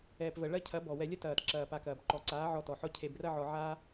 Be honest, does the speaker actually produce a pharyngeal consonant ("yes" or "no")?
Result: yes